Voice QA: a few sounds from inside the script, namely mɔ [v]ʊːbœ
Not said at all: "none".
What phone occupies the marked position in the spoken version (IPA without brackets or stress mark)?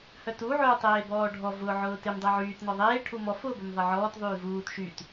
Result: f